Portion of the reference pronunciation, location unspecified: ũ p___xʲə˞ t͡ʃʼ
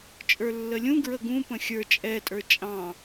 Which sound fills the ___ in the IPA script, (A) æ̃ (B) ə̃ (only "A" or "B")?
B